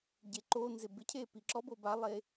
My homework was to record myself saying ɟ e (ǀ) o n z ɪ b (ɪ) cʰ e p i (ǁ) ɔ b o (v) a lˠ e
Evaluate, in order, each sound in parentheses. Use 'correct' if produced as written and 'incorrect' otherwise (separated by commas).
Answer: incorrect, correct, correct, incorrect